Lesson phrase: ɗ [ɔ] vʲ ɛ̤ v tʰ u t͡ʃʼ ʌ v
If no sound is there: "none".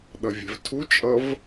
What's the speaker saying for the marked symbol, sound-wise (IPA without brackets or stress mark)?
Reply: ʌ